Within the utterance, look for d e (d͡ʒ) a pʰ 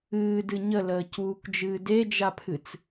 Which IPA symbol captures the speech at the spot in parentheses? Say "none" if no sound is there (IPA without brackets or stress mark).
d͡ʒ